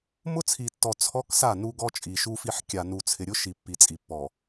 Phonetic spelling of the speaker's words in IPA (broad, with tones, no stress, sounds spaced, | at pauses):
m ʊ˦ t͡sʰ i˨ tː ɔ˨ t͡sʰ ɔ˦ k s a˦˨ n u˦ ɡ ɔ˦ t͡ʃʼ i˨ ʃ u˨ f i˨ ħ kʲ a˨ n u˨ t͡sʰ ɪ˨ ɾʲ ʊ˦ ʃ i˨ pː i˨ t͡sʼ i˨ pː ɔ˨